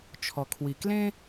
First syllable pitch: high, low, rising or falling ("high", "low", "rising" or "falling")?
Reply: low